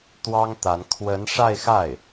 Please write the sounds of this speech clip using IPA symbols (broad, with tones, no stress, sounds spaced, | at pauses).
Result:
t̪ w ɑ˥ ŋ t̪ a˧˥ n kʰ w ə˧˥ n ʂ a˥˧ ɪ̯ x a˥˩ ɪ̯